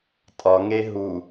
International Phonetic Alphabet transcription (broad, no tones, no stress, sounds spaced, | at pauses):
tʼ ɒ ŋ e ɦ u